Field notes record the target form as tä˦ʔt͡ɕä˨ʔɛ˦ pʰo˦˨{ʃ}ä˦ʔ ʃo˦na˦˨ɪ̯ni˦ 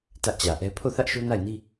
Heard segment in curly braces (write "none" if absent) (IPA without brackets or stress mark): θ